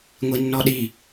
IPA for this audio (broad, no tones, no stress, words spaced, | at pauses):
ŋʷinːɔɗi